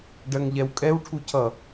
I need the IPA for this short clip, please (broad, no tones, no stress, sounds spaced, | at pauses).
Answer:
ɖ ɜ ŋ ʎ ɛ w kʼ ɛ w ʈʰ u cʰ ʌ